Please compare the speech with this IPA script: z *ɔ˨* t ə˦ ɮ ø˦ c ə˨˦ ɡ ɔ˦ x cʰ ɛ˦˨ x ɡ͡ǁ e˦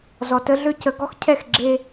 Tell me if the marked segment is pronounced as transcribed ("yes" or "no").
yes